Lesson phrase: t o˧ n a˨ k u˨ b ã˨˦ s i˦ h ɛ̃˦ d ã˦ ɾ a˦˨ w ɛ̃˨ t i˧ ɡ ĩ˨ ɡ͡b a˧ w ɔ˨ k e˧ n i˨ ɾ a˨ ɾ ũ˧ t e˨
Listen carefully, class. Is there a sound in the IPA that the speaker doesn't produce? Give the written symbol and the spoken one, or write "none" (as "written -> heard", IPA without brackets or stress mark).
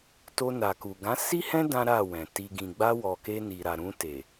b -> ɡ